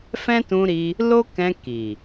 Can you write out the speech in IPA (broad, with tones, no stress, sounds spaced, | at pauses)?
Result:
f ɛ̃˦ t ũ˧ ɾ i˧ | l o˦ k ɛ̃˧ k i˨